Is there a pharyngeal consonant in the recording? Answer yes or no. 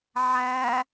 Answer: yes